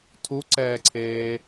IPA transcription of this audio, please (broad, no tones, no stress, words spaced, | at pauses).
tʰuǀɛːǀʰeː